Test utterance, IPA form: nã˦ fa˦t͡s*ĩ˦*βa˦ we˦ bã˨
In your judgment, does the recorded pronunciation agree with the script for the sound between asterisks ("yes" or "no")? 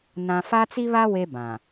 no